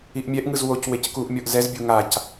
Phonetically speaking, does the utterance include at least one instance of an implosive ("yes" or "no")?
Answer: no